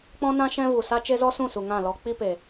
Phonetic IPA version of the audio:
k͡p ɔ̃˦ n ã˦ ʃ ɛ̃˦ v u˨ s a˦ t͡ʃ e˦ z ɔ˦ s ũ˦˨ s u˨ ŋ ã˦˨ l ɔ˧ k͡p i˦ p e˨

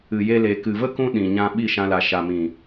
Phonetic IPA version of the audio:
ɨ˨ j e˧ l e˨ k ɨ˨ v ə˦ k ũ˧ ɗ ĩ˨ ɲ ã˧ ɓ i˦˨ ʃ ã˧ l a˨ ʃ a˨ m ĩ˨

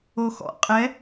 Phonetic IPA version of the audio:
o x ɔ̰ qʼ ɛ

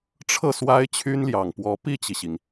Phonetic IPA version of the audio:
ʈ͡ʂʰ ɤ˥˩ s w a˥ ɪ̯ t͡ɕʰ y˥ n l j ɑ˨˩ ŋ p w ɔ˧˥ p i˥˩ t͡ɕ i˩ ɕ i˩ ŋ

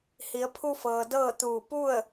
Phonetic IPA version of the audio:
h i˩˧ ə̯ pʰ u˧ f ɤː˩ d ɤː˥˨ t̪ uː˧˩ p u˥˨ ə̯

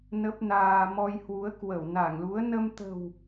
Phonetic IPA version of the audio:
n ə˦˥ p̚ n aː˧ m ɔ˧ j h w u˨˦ ə̯ k w ə˧˩ w n a˧˩ ŋ l u˨˦ ə̯ n ə˧ m t̪ ə̤˨˩ w

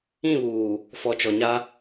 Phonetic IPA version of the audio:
ĩ˦˨ β uː˨ | f ɔ˨ t͡ʃ ɔ˨ ɲ a˦

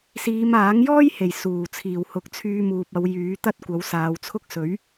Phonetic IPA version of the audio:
s iː˨˧ m aː˨˥ ŋ j ɔː˥ j h e˨˩ j s uː˨˩ t͡sʰ iː˨˩ w h ʊ˨˥ k̚ t͡sʰ yː˧ m uː˨ p̚ ɐ˨˧ w j yː˨˥ t̪ ɐ˥ t̚ kʷ ɐ˨˥ w s aː˨˧ w t͡sʰ ʊ˥ k̚ s ɵ˨˥ ɥ

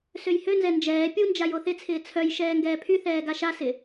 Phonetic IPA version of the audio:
s ø j h ø n z ɛ n d͡ʒ ɛː pʲ u n d͡ʒ a j o θ ɪ t͡sʰ ɪː t͡sʰ œ j ʃ ɛː ŋ ɡ ɛː pʰ y θ ɛː ɡ a ʃ a s ɪ

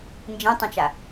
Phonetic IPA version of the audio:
n d͡ʒ ĩ tˤ ĩ t͡ʃ a

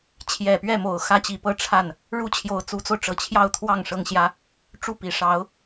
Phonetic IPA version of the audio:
t͡ɕʰ j ɛ˨˩ p ɥ ɛ˥˩ m o˨˩ ʊ̯ x ä˥ t͡ɕ i˧˥ p ɤ˥ ʈ͡ʂʰ a˥˩ n | ɻ u˥ t͡ɕʰ j o˧˥ ʊ̯ t͡s u˧˥ t͡s o˧ ʊ̯ ʈ͡ʂ ɤ˨˩ t͡ɕʰ j ɑ˥˧ ʊ̯ t̪ʰ w ɑ˥˩ ŋ ʂ ɤ˥ ŋ ɕ j ä˥ | ʈ͡ʂ u˥˩ p i˨˩ ʂ ɑ˧˥ ʊ̯

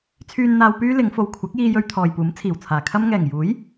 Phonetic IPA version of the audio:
t͡sʰ yː˨ n n̪ aː˨ w p yː˧ l ɪ˨˧ ŋ f o˨ w kʷʰ ɐ˨˥ k̚ j iː˧ j ɵ˧ ɥ t̪ʰ ɔː˨ j p uː˨˥ m t͡sʰ iː˨˩ w t͡sʰ aː˨˩ kʰ ɐ˥ m ŋ ɛː˨˩ ŋ j uː˨˥ j

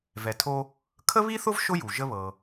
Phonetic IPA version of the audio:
v ɛ˩ tʰ o˦ | kʰ ə˥ β i˥ θ ʊ˥ v ʃ ʊ˥ j u˩ ʒ ə˦ β ɤ˨

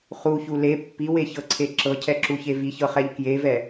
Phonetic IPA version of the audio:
χ u ç u l e pː i w e ç ɤ ǀʰ e ǁ ɤ cʰ ɛ ǁ u ç e v i ç ɤ χ ɛ ʎ k j e v ɛ

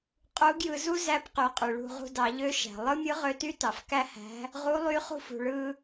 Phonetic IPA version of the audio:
qʼ u˧˥ ɡ j ɯ˧ z u˥ z æ˧˥ p q y˩˧ qʼ y˩ ɭ ṳ˧ ʁ ṳ˧ d ɑ˩˧ ʎ ø˧˥ ʃ æ̤˩ lˠ ɯ˥ mʲ ɯ˧˥ ʁ ø˧ t y˥ t ɑ˩ f k æ˥ h æ̤˧˥ | ʁ u˧˥ lˠ y˧˥ χ ṳ˧ f ṳ˩ ɭ ɯ˧

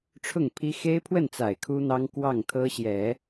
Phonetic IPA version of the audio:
ʈ͡ʂʰ ʊ˥˩ ŋ pʰ i˥ x e˥ ɪ̯ pʰ w ə˥˩ n t͡s a˨˩ ɪ̯ kʰ u˥ n̪ ɑ˥ ŋ k w ɑ˥˩ ŋ t̪ʰ ɤ˥ ɕ j ɛ˨˩˦

